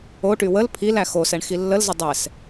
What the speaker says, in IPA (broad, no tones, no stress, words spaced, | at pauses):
oʈy wəl pʰil æxosɛɳ xilːəlzə dˤɛs